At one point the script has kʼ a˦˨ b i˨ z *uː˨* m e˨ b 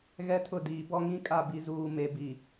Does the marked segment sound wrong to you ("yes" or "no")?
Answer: no